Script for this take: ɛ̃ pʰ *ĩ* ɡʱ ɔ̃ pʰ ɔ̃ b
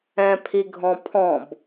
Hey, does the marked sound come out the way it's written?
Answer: no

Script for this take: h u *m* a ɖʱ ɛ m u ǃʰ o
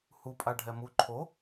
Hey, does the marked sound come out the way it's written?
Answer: no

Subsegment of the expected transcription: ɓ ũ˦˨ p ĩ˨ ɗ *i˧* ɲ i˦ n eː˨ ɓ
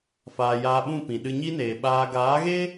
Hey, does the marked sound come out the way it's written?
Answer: no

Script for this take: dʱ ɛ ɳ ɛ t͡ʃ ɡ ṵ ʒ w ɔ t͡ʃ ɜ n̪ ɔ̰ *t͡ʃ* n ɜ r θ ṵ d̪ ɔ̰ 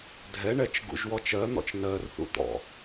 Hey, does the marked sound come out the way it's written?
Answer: yes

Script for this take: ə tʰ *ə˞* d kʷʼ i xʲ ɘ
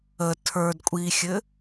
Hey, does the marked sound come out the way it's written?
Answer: yes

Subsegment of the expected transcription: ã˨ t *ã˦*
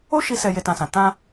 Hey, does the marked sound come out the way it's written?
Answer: no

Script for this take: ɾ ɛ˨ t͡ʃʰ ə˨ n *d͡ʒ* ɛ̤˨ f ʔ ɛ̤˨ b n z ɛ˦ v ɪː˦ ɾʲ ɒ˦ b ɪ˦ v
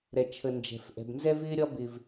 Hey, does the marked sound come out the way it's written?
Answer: yes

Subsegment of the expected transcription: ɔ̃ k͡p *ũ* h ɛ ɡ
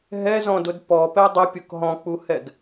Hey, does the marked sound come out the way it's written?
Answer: no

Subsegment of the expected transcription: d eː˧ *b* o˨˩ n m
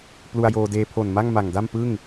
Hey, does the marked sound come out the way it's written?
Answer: no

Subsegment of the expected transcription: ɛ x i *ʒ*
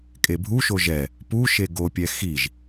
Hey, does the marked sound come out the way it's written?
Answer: yes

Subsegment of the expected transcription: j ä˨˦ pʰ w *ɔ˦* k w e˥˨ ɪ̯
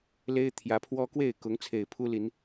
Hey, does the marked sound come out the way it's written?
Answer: yes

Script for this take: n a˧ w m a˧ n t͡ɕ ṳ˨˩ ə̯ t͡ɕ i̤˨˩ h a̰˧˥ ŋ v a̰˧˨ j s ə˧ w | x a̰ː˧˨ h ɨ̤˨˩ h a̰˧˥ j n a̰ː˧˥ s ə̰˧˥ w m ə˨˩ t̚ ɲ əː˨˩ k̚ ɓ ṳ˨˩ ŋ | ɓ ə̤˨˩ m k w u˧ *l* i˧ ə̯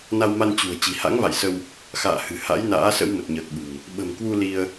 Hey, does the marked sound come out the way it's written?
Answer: yes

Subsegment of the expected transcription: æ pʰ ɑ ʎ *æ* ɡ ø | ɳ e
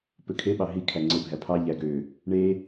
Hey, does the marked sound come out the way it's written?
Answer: yes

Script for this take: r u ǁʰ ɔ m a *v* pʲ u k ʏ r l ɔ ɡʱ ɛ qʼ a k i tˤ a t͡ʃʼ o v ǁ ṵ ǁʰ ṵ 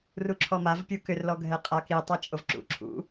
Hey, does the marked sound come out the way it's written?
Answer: yes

